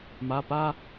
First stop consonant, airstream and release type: plain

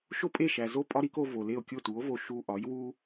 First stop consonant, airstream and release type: ejective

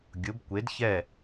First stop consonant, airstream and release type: plain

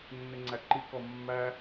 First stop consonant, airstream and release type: click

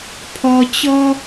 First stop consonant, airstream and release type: aspirated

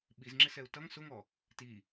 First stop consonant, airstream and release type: implosive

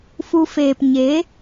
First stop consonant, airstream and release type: plain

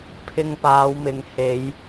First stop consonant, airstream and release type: aspirated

